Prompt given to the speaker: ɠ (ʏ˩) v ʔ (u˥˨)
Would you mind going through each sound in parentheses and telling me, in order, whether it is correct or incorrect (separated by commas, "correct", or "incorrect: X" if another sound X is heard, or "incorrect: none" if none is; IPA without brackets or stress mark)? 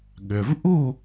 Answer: correct, correct